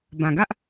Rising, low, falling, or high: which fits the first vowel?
low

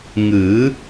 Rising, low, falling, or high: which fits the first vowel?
rising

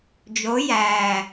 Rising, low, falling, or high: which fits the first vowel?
rising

